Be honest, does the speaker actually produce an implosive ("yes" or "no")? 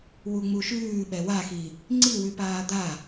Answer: yes